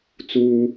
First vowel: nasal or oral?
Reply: oral